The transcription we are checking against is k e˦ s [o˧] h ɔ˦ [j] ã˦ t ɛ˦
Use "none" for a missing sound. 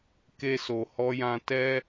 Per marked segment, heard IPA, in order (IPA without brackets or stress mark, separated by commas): o˧, j